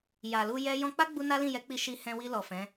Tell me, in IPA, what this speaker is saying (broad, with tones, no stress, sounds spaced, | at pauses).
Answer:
j a˨ l u˧ j ɛ˦ j ɔ̃˧ k͡p a˦ ɡ͡b u˧ n a˦ l ĩ˦˨ j ɛ˨˦ k͡p i˧ ʃ i˧ h ɛ̃˧ w i˧ l ɔ˨ f ɛ̃˨˦